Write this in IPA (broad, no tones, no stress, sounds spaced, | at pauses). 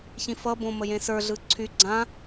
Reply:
ç ĩ f ʌ b õ m ə j ẽ s ə˞ ɮ ɯ ǀʰ y ɡ͡ǀ ã